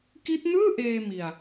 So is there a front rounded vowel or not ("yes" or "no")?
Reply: no